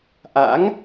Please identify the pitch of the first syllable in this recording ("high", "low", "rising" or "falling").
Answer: rising